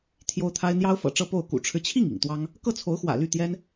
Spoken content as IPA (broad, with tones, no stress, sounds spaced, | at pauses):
t̪ʰ j o˥ ʊ̯ t̪ʰ a˥ ɪ̯ n̪ j ɑ˥ ʊ̯ f ɤ̰˨˩ ʈ͡ʂ ɤ˥˧ p o˥˩ ʊ̯ k ṵ˨˩ ʈ͡ʂʰ ɻ̩˦ t͡ɕʰ i˥˩ ŋ ḭ˨˩ ŋ t̪ w ɑ˥ ŋ | k ɤ˥˩ t͡sʰ o˧˥ ʊ̯ x w ä̰˨˩ l y˥˩ t̪ j ɛ˥ n